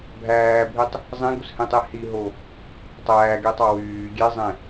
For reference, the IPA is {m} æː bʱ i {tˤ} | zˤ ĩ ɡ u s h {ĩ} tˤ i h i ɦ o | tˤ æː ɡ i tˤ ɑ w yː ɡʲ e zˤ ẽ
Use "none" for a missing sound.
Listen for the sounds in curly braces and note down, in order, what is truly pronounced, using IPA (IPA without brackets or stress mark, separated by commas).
bʱ, tˤ, ĩ